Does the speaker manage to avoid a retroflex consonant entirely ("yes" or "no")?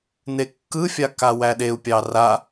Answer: yes